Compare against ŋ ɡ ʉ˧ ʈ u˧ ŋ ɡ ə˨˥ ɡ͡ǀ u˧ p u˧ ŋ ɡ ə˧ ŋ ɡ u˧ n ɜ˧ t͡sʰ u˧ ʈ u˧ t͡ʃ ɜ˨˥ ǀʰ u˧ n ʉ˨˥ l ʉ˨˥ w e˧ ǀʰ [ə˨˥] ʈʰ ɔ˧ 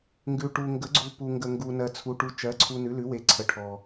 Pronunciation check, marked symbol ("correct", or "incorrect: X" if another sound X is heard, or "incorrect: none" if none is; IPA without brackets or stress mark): correct